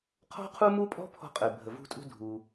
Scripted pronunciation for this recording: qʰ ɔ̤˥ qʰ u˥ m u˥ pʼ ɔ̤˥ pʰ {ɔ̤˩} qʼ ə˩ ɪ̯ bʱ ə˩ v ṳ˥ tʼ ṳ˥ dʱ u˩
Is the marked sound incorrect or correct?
incorrect